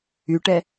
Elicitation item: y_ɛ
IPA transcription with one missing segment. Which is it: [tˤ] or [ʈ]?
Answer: ʈ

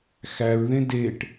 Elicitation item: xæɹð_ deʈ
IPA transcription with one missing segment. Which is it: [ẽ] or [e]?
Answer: ẽ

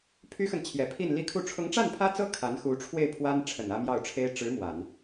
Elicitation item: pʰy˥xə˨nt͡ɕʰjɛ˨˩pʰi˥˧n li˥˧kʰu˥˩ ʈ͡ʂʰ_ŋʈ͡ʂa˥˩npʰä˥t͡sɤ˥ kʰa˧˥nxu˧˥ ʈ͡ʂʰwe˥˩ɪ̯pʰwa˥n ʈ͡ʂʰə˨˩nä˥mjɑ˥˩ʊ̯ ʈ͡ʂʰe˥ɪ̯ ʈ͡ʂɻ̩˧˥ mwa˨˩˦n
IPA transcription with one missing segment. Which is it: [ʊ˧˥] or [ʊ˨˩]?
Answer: ʊ˧˥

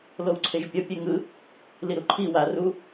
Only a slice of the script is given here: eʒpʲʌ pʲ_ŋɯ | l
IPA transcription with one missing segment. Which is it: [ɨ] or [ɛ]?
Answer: ɛ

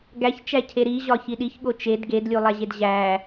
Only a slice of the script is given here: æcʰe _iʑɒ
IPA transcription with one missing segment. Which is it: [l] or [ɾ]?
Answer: ɾ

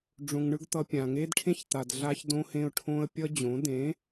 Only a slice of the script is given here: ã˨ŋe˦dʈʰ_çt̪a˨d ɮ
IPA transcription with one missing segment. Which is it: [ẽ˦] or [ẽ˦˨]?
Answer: ẽ˦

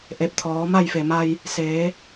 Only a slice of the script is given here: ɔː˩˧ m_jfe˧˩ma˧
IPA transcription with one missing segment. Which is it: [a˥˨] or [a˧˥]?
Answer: a˥˨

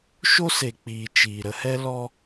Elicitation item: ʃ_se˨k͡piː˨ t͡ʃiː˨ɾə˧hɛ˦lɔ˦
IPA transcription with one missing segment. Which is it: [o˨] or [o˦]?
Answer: o˦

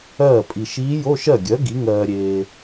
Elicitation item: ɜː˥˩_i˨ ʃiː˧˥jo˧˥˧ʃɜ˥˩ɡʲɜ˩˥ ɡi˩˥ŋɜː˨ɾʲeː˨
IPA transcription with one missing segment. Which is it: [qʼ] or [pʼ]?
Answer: pʼ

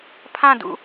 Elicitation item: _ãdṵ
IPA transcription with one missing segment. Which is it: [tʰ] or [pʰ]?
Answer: pʰ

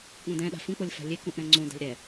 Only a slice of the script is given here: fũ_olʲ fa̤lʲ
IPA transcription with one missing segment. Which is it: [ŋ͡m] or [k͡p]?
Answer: k͡p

